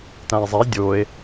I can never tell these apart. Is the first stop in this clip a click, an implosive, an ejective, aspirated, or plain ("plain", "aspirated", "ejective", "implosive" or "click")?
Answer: plain